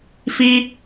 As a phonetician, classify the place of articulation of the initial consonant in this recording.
labial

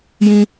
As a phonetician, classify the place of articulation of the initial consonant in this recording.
palatal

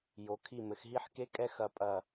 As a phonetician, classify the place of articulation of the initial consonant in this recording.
palatal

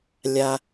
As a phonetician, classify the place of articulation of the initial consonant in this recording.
alveolar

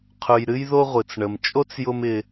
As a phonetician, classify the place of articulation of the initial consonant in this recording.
uvular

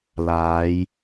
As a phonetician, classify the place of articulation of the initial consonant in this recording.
alveolar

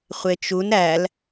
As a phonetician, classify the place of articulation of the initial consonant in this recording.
uvular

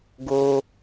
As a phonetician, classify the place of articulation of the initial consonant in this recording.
velar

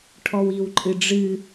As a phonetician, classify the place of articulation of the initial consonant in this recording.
retroflex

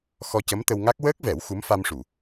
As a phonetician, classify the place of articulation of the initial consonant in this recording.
velar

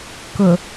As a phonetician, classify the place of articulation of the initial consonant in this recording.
velar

